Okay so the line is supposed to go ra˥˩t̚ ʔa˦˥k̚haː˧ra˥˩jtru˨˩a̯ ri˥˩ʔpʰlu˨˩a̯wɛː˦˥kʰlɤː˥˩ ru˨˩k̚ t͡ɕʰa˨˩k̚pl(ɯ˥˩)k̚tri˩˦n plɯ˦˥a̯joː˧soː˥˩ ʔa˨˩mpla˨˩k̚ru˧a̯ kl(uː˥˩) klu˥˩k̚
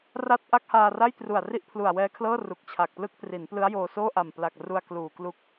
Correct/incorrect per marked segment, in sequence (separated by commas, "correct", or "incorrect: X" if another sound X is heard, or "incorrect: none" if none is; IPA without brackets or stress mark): correct, incorrect: uː˨˩